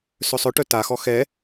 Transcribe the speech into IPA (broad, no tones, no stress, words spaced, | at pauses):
sœsˤœʈœ taxɔ xɛ